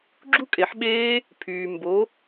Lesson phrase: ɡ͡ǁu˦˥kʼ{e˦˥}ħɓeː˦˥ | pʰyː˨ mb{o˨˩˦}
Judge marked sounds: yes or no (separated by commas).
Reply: no, no